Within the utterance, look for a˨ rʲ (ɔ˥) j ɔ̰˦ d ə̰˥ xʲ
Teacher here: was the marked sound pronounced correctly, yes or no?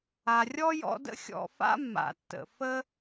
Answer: yes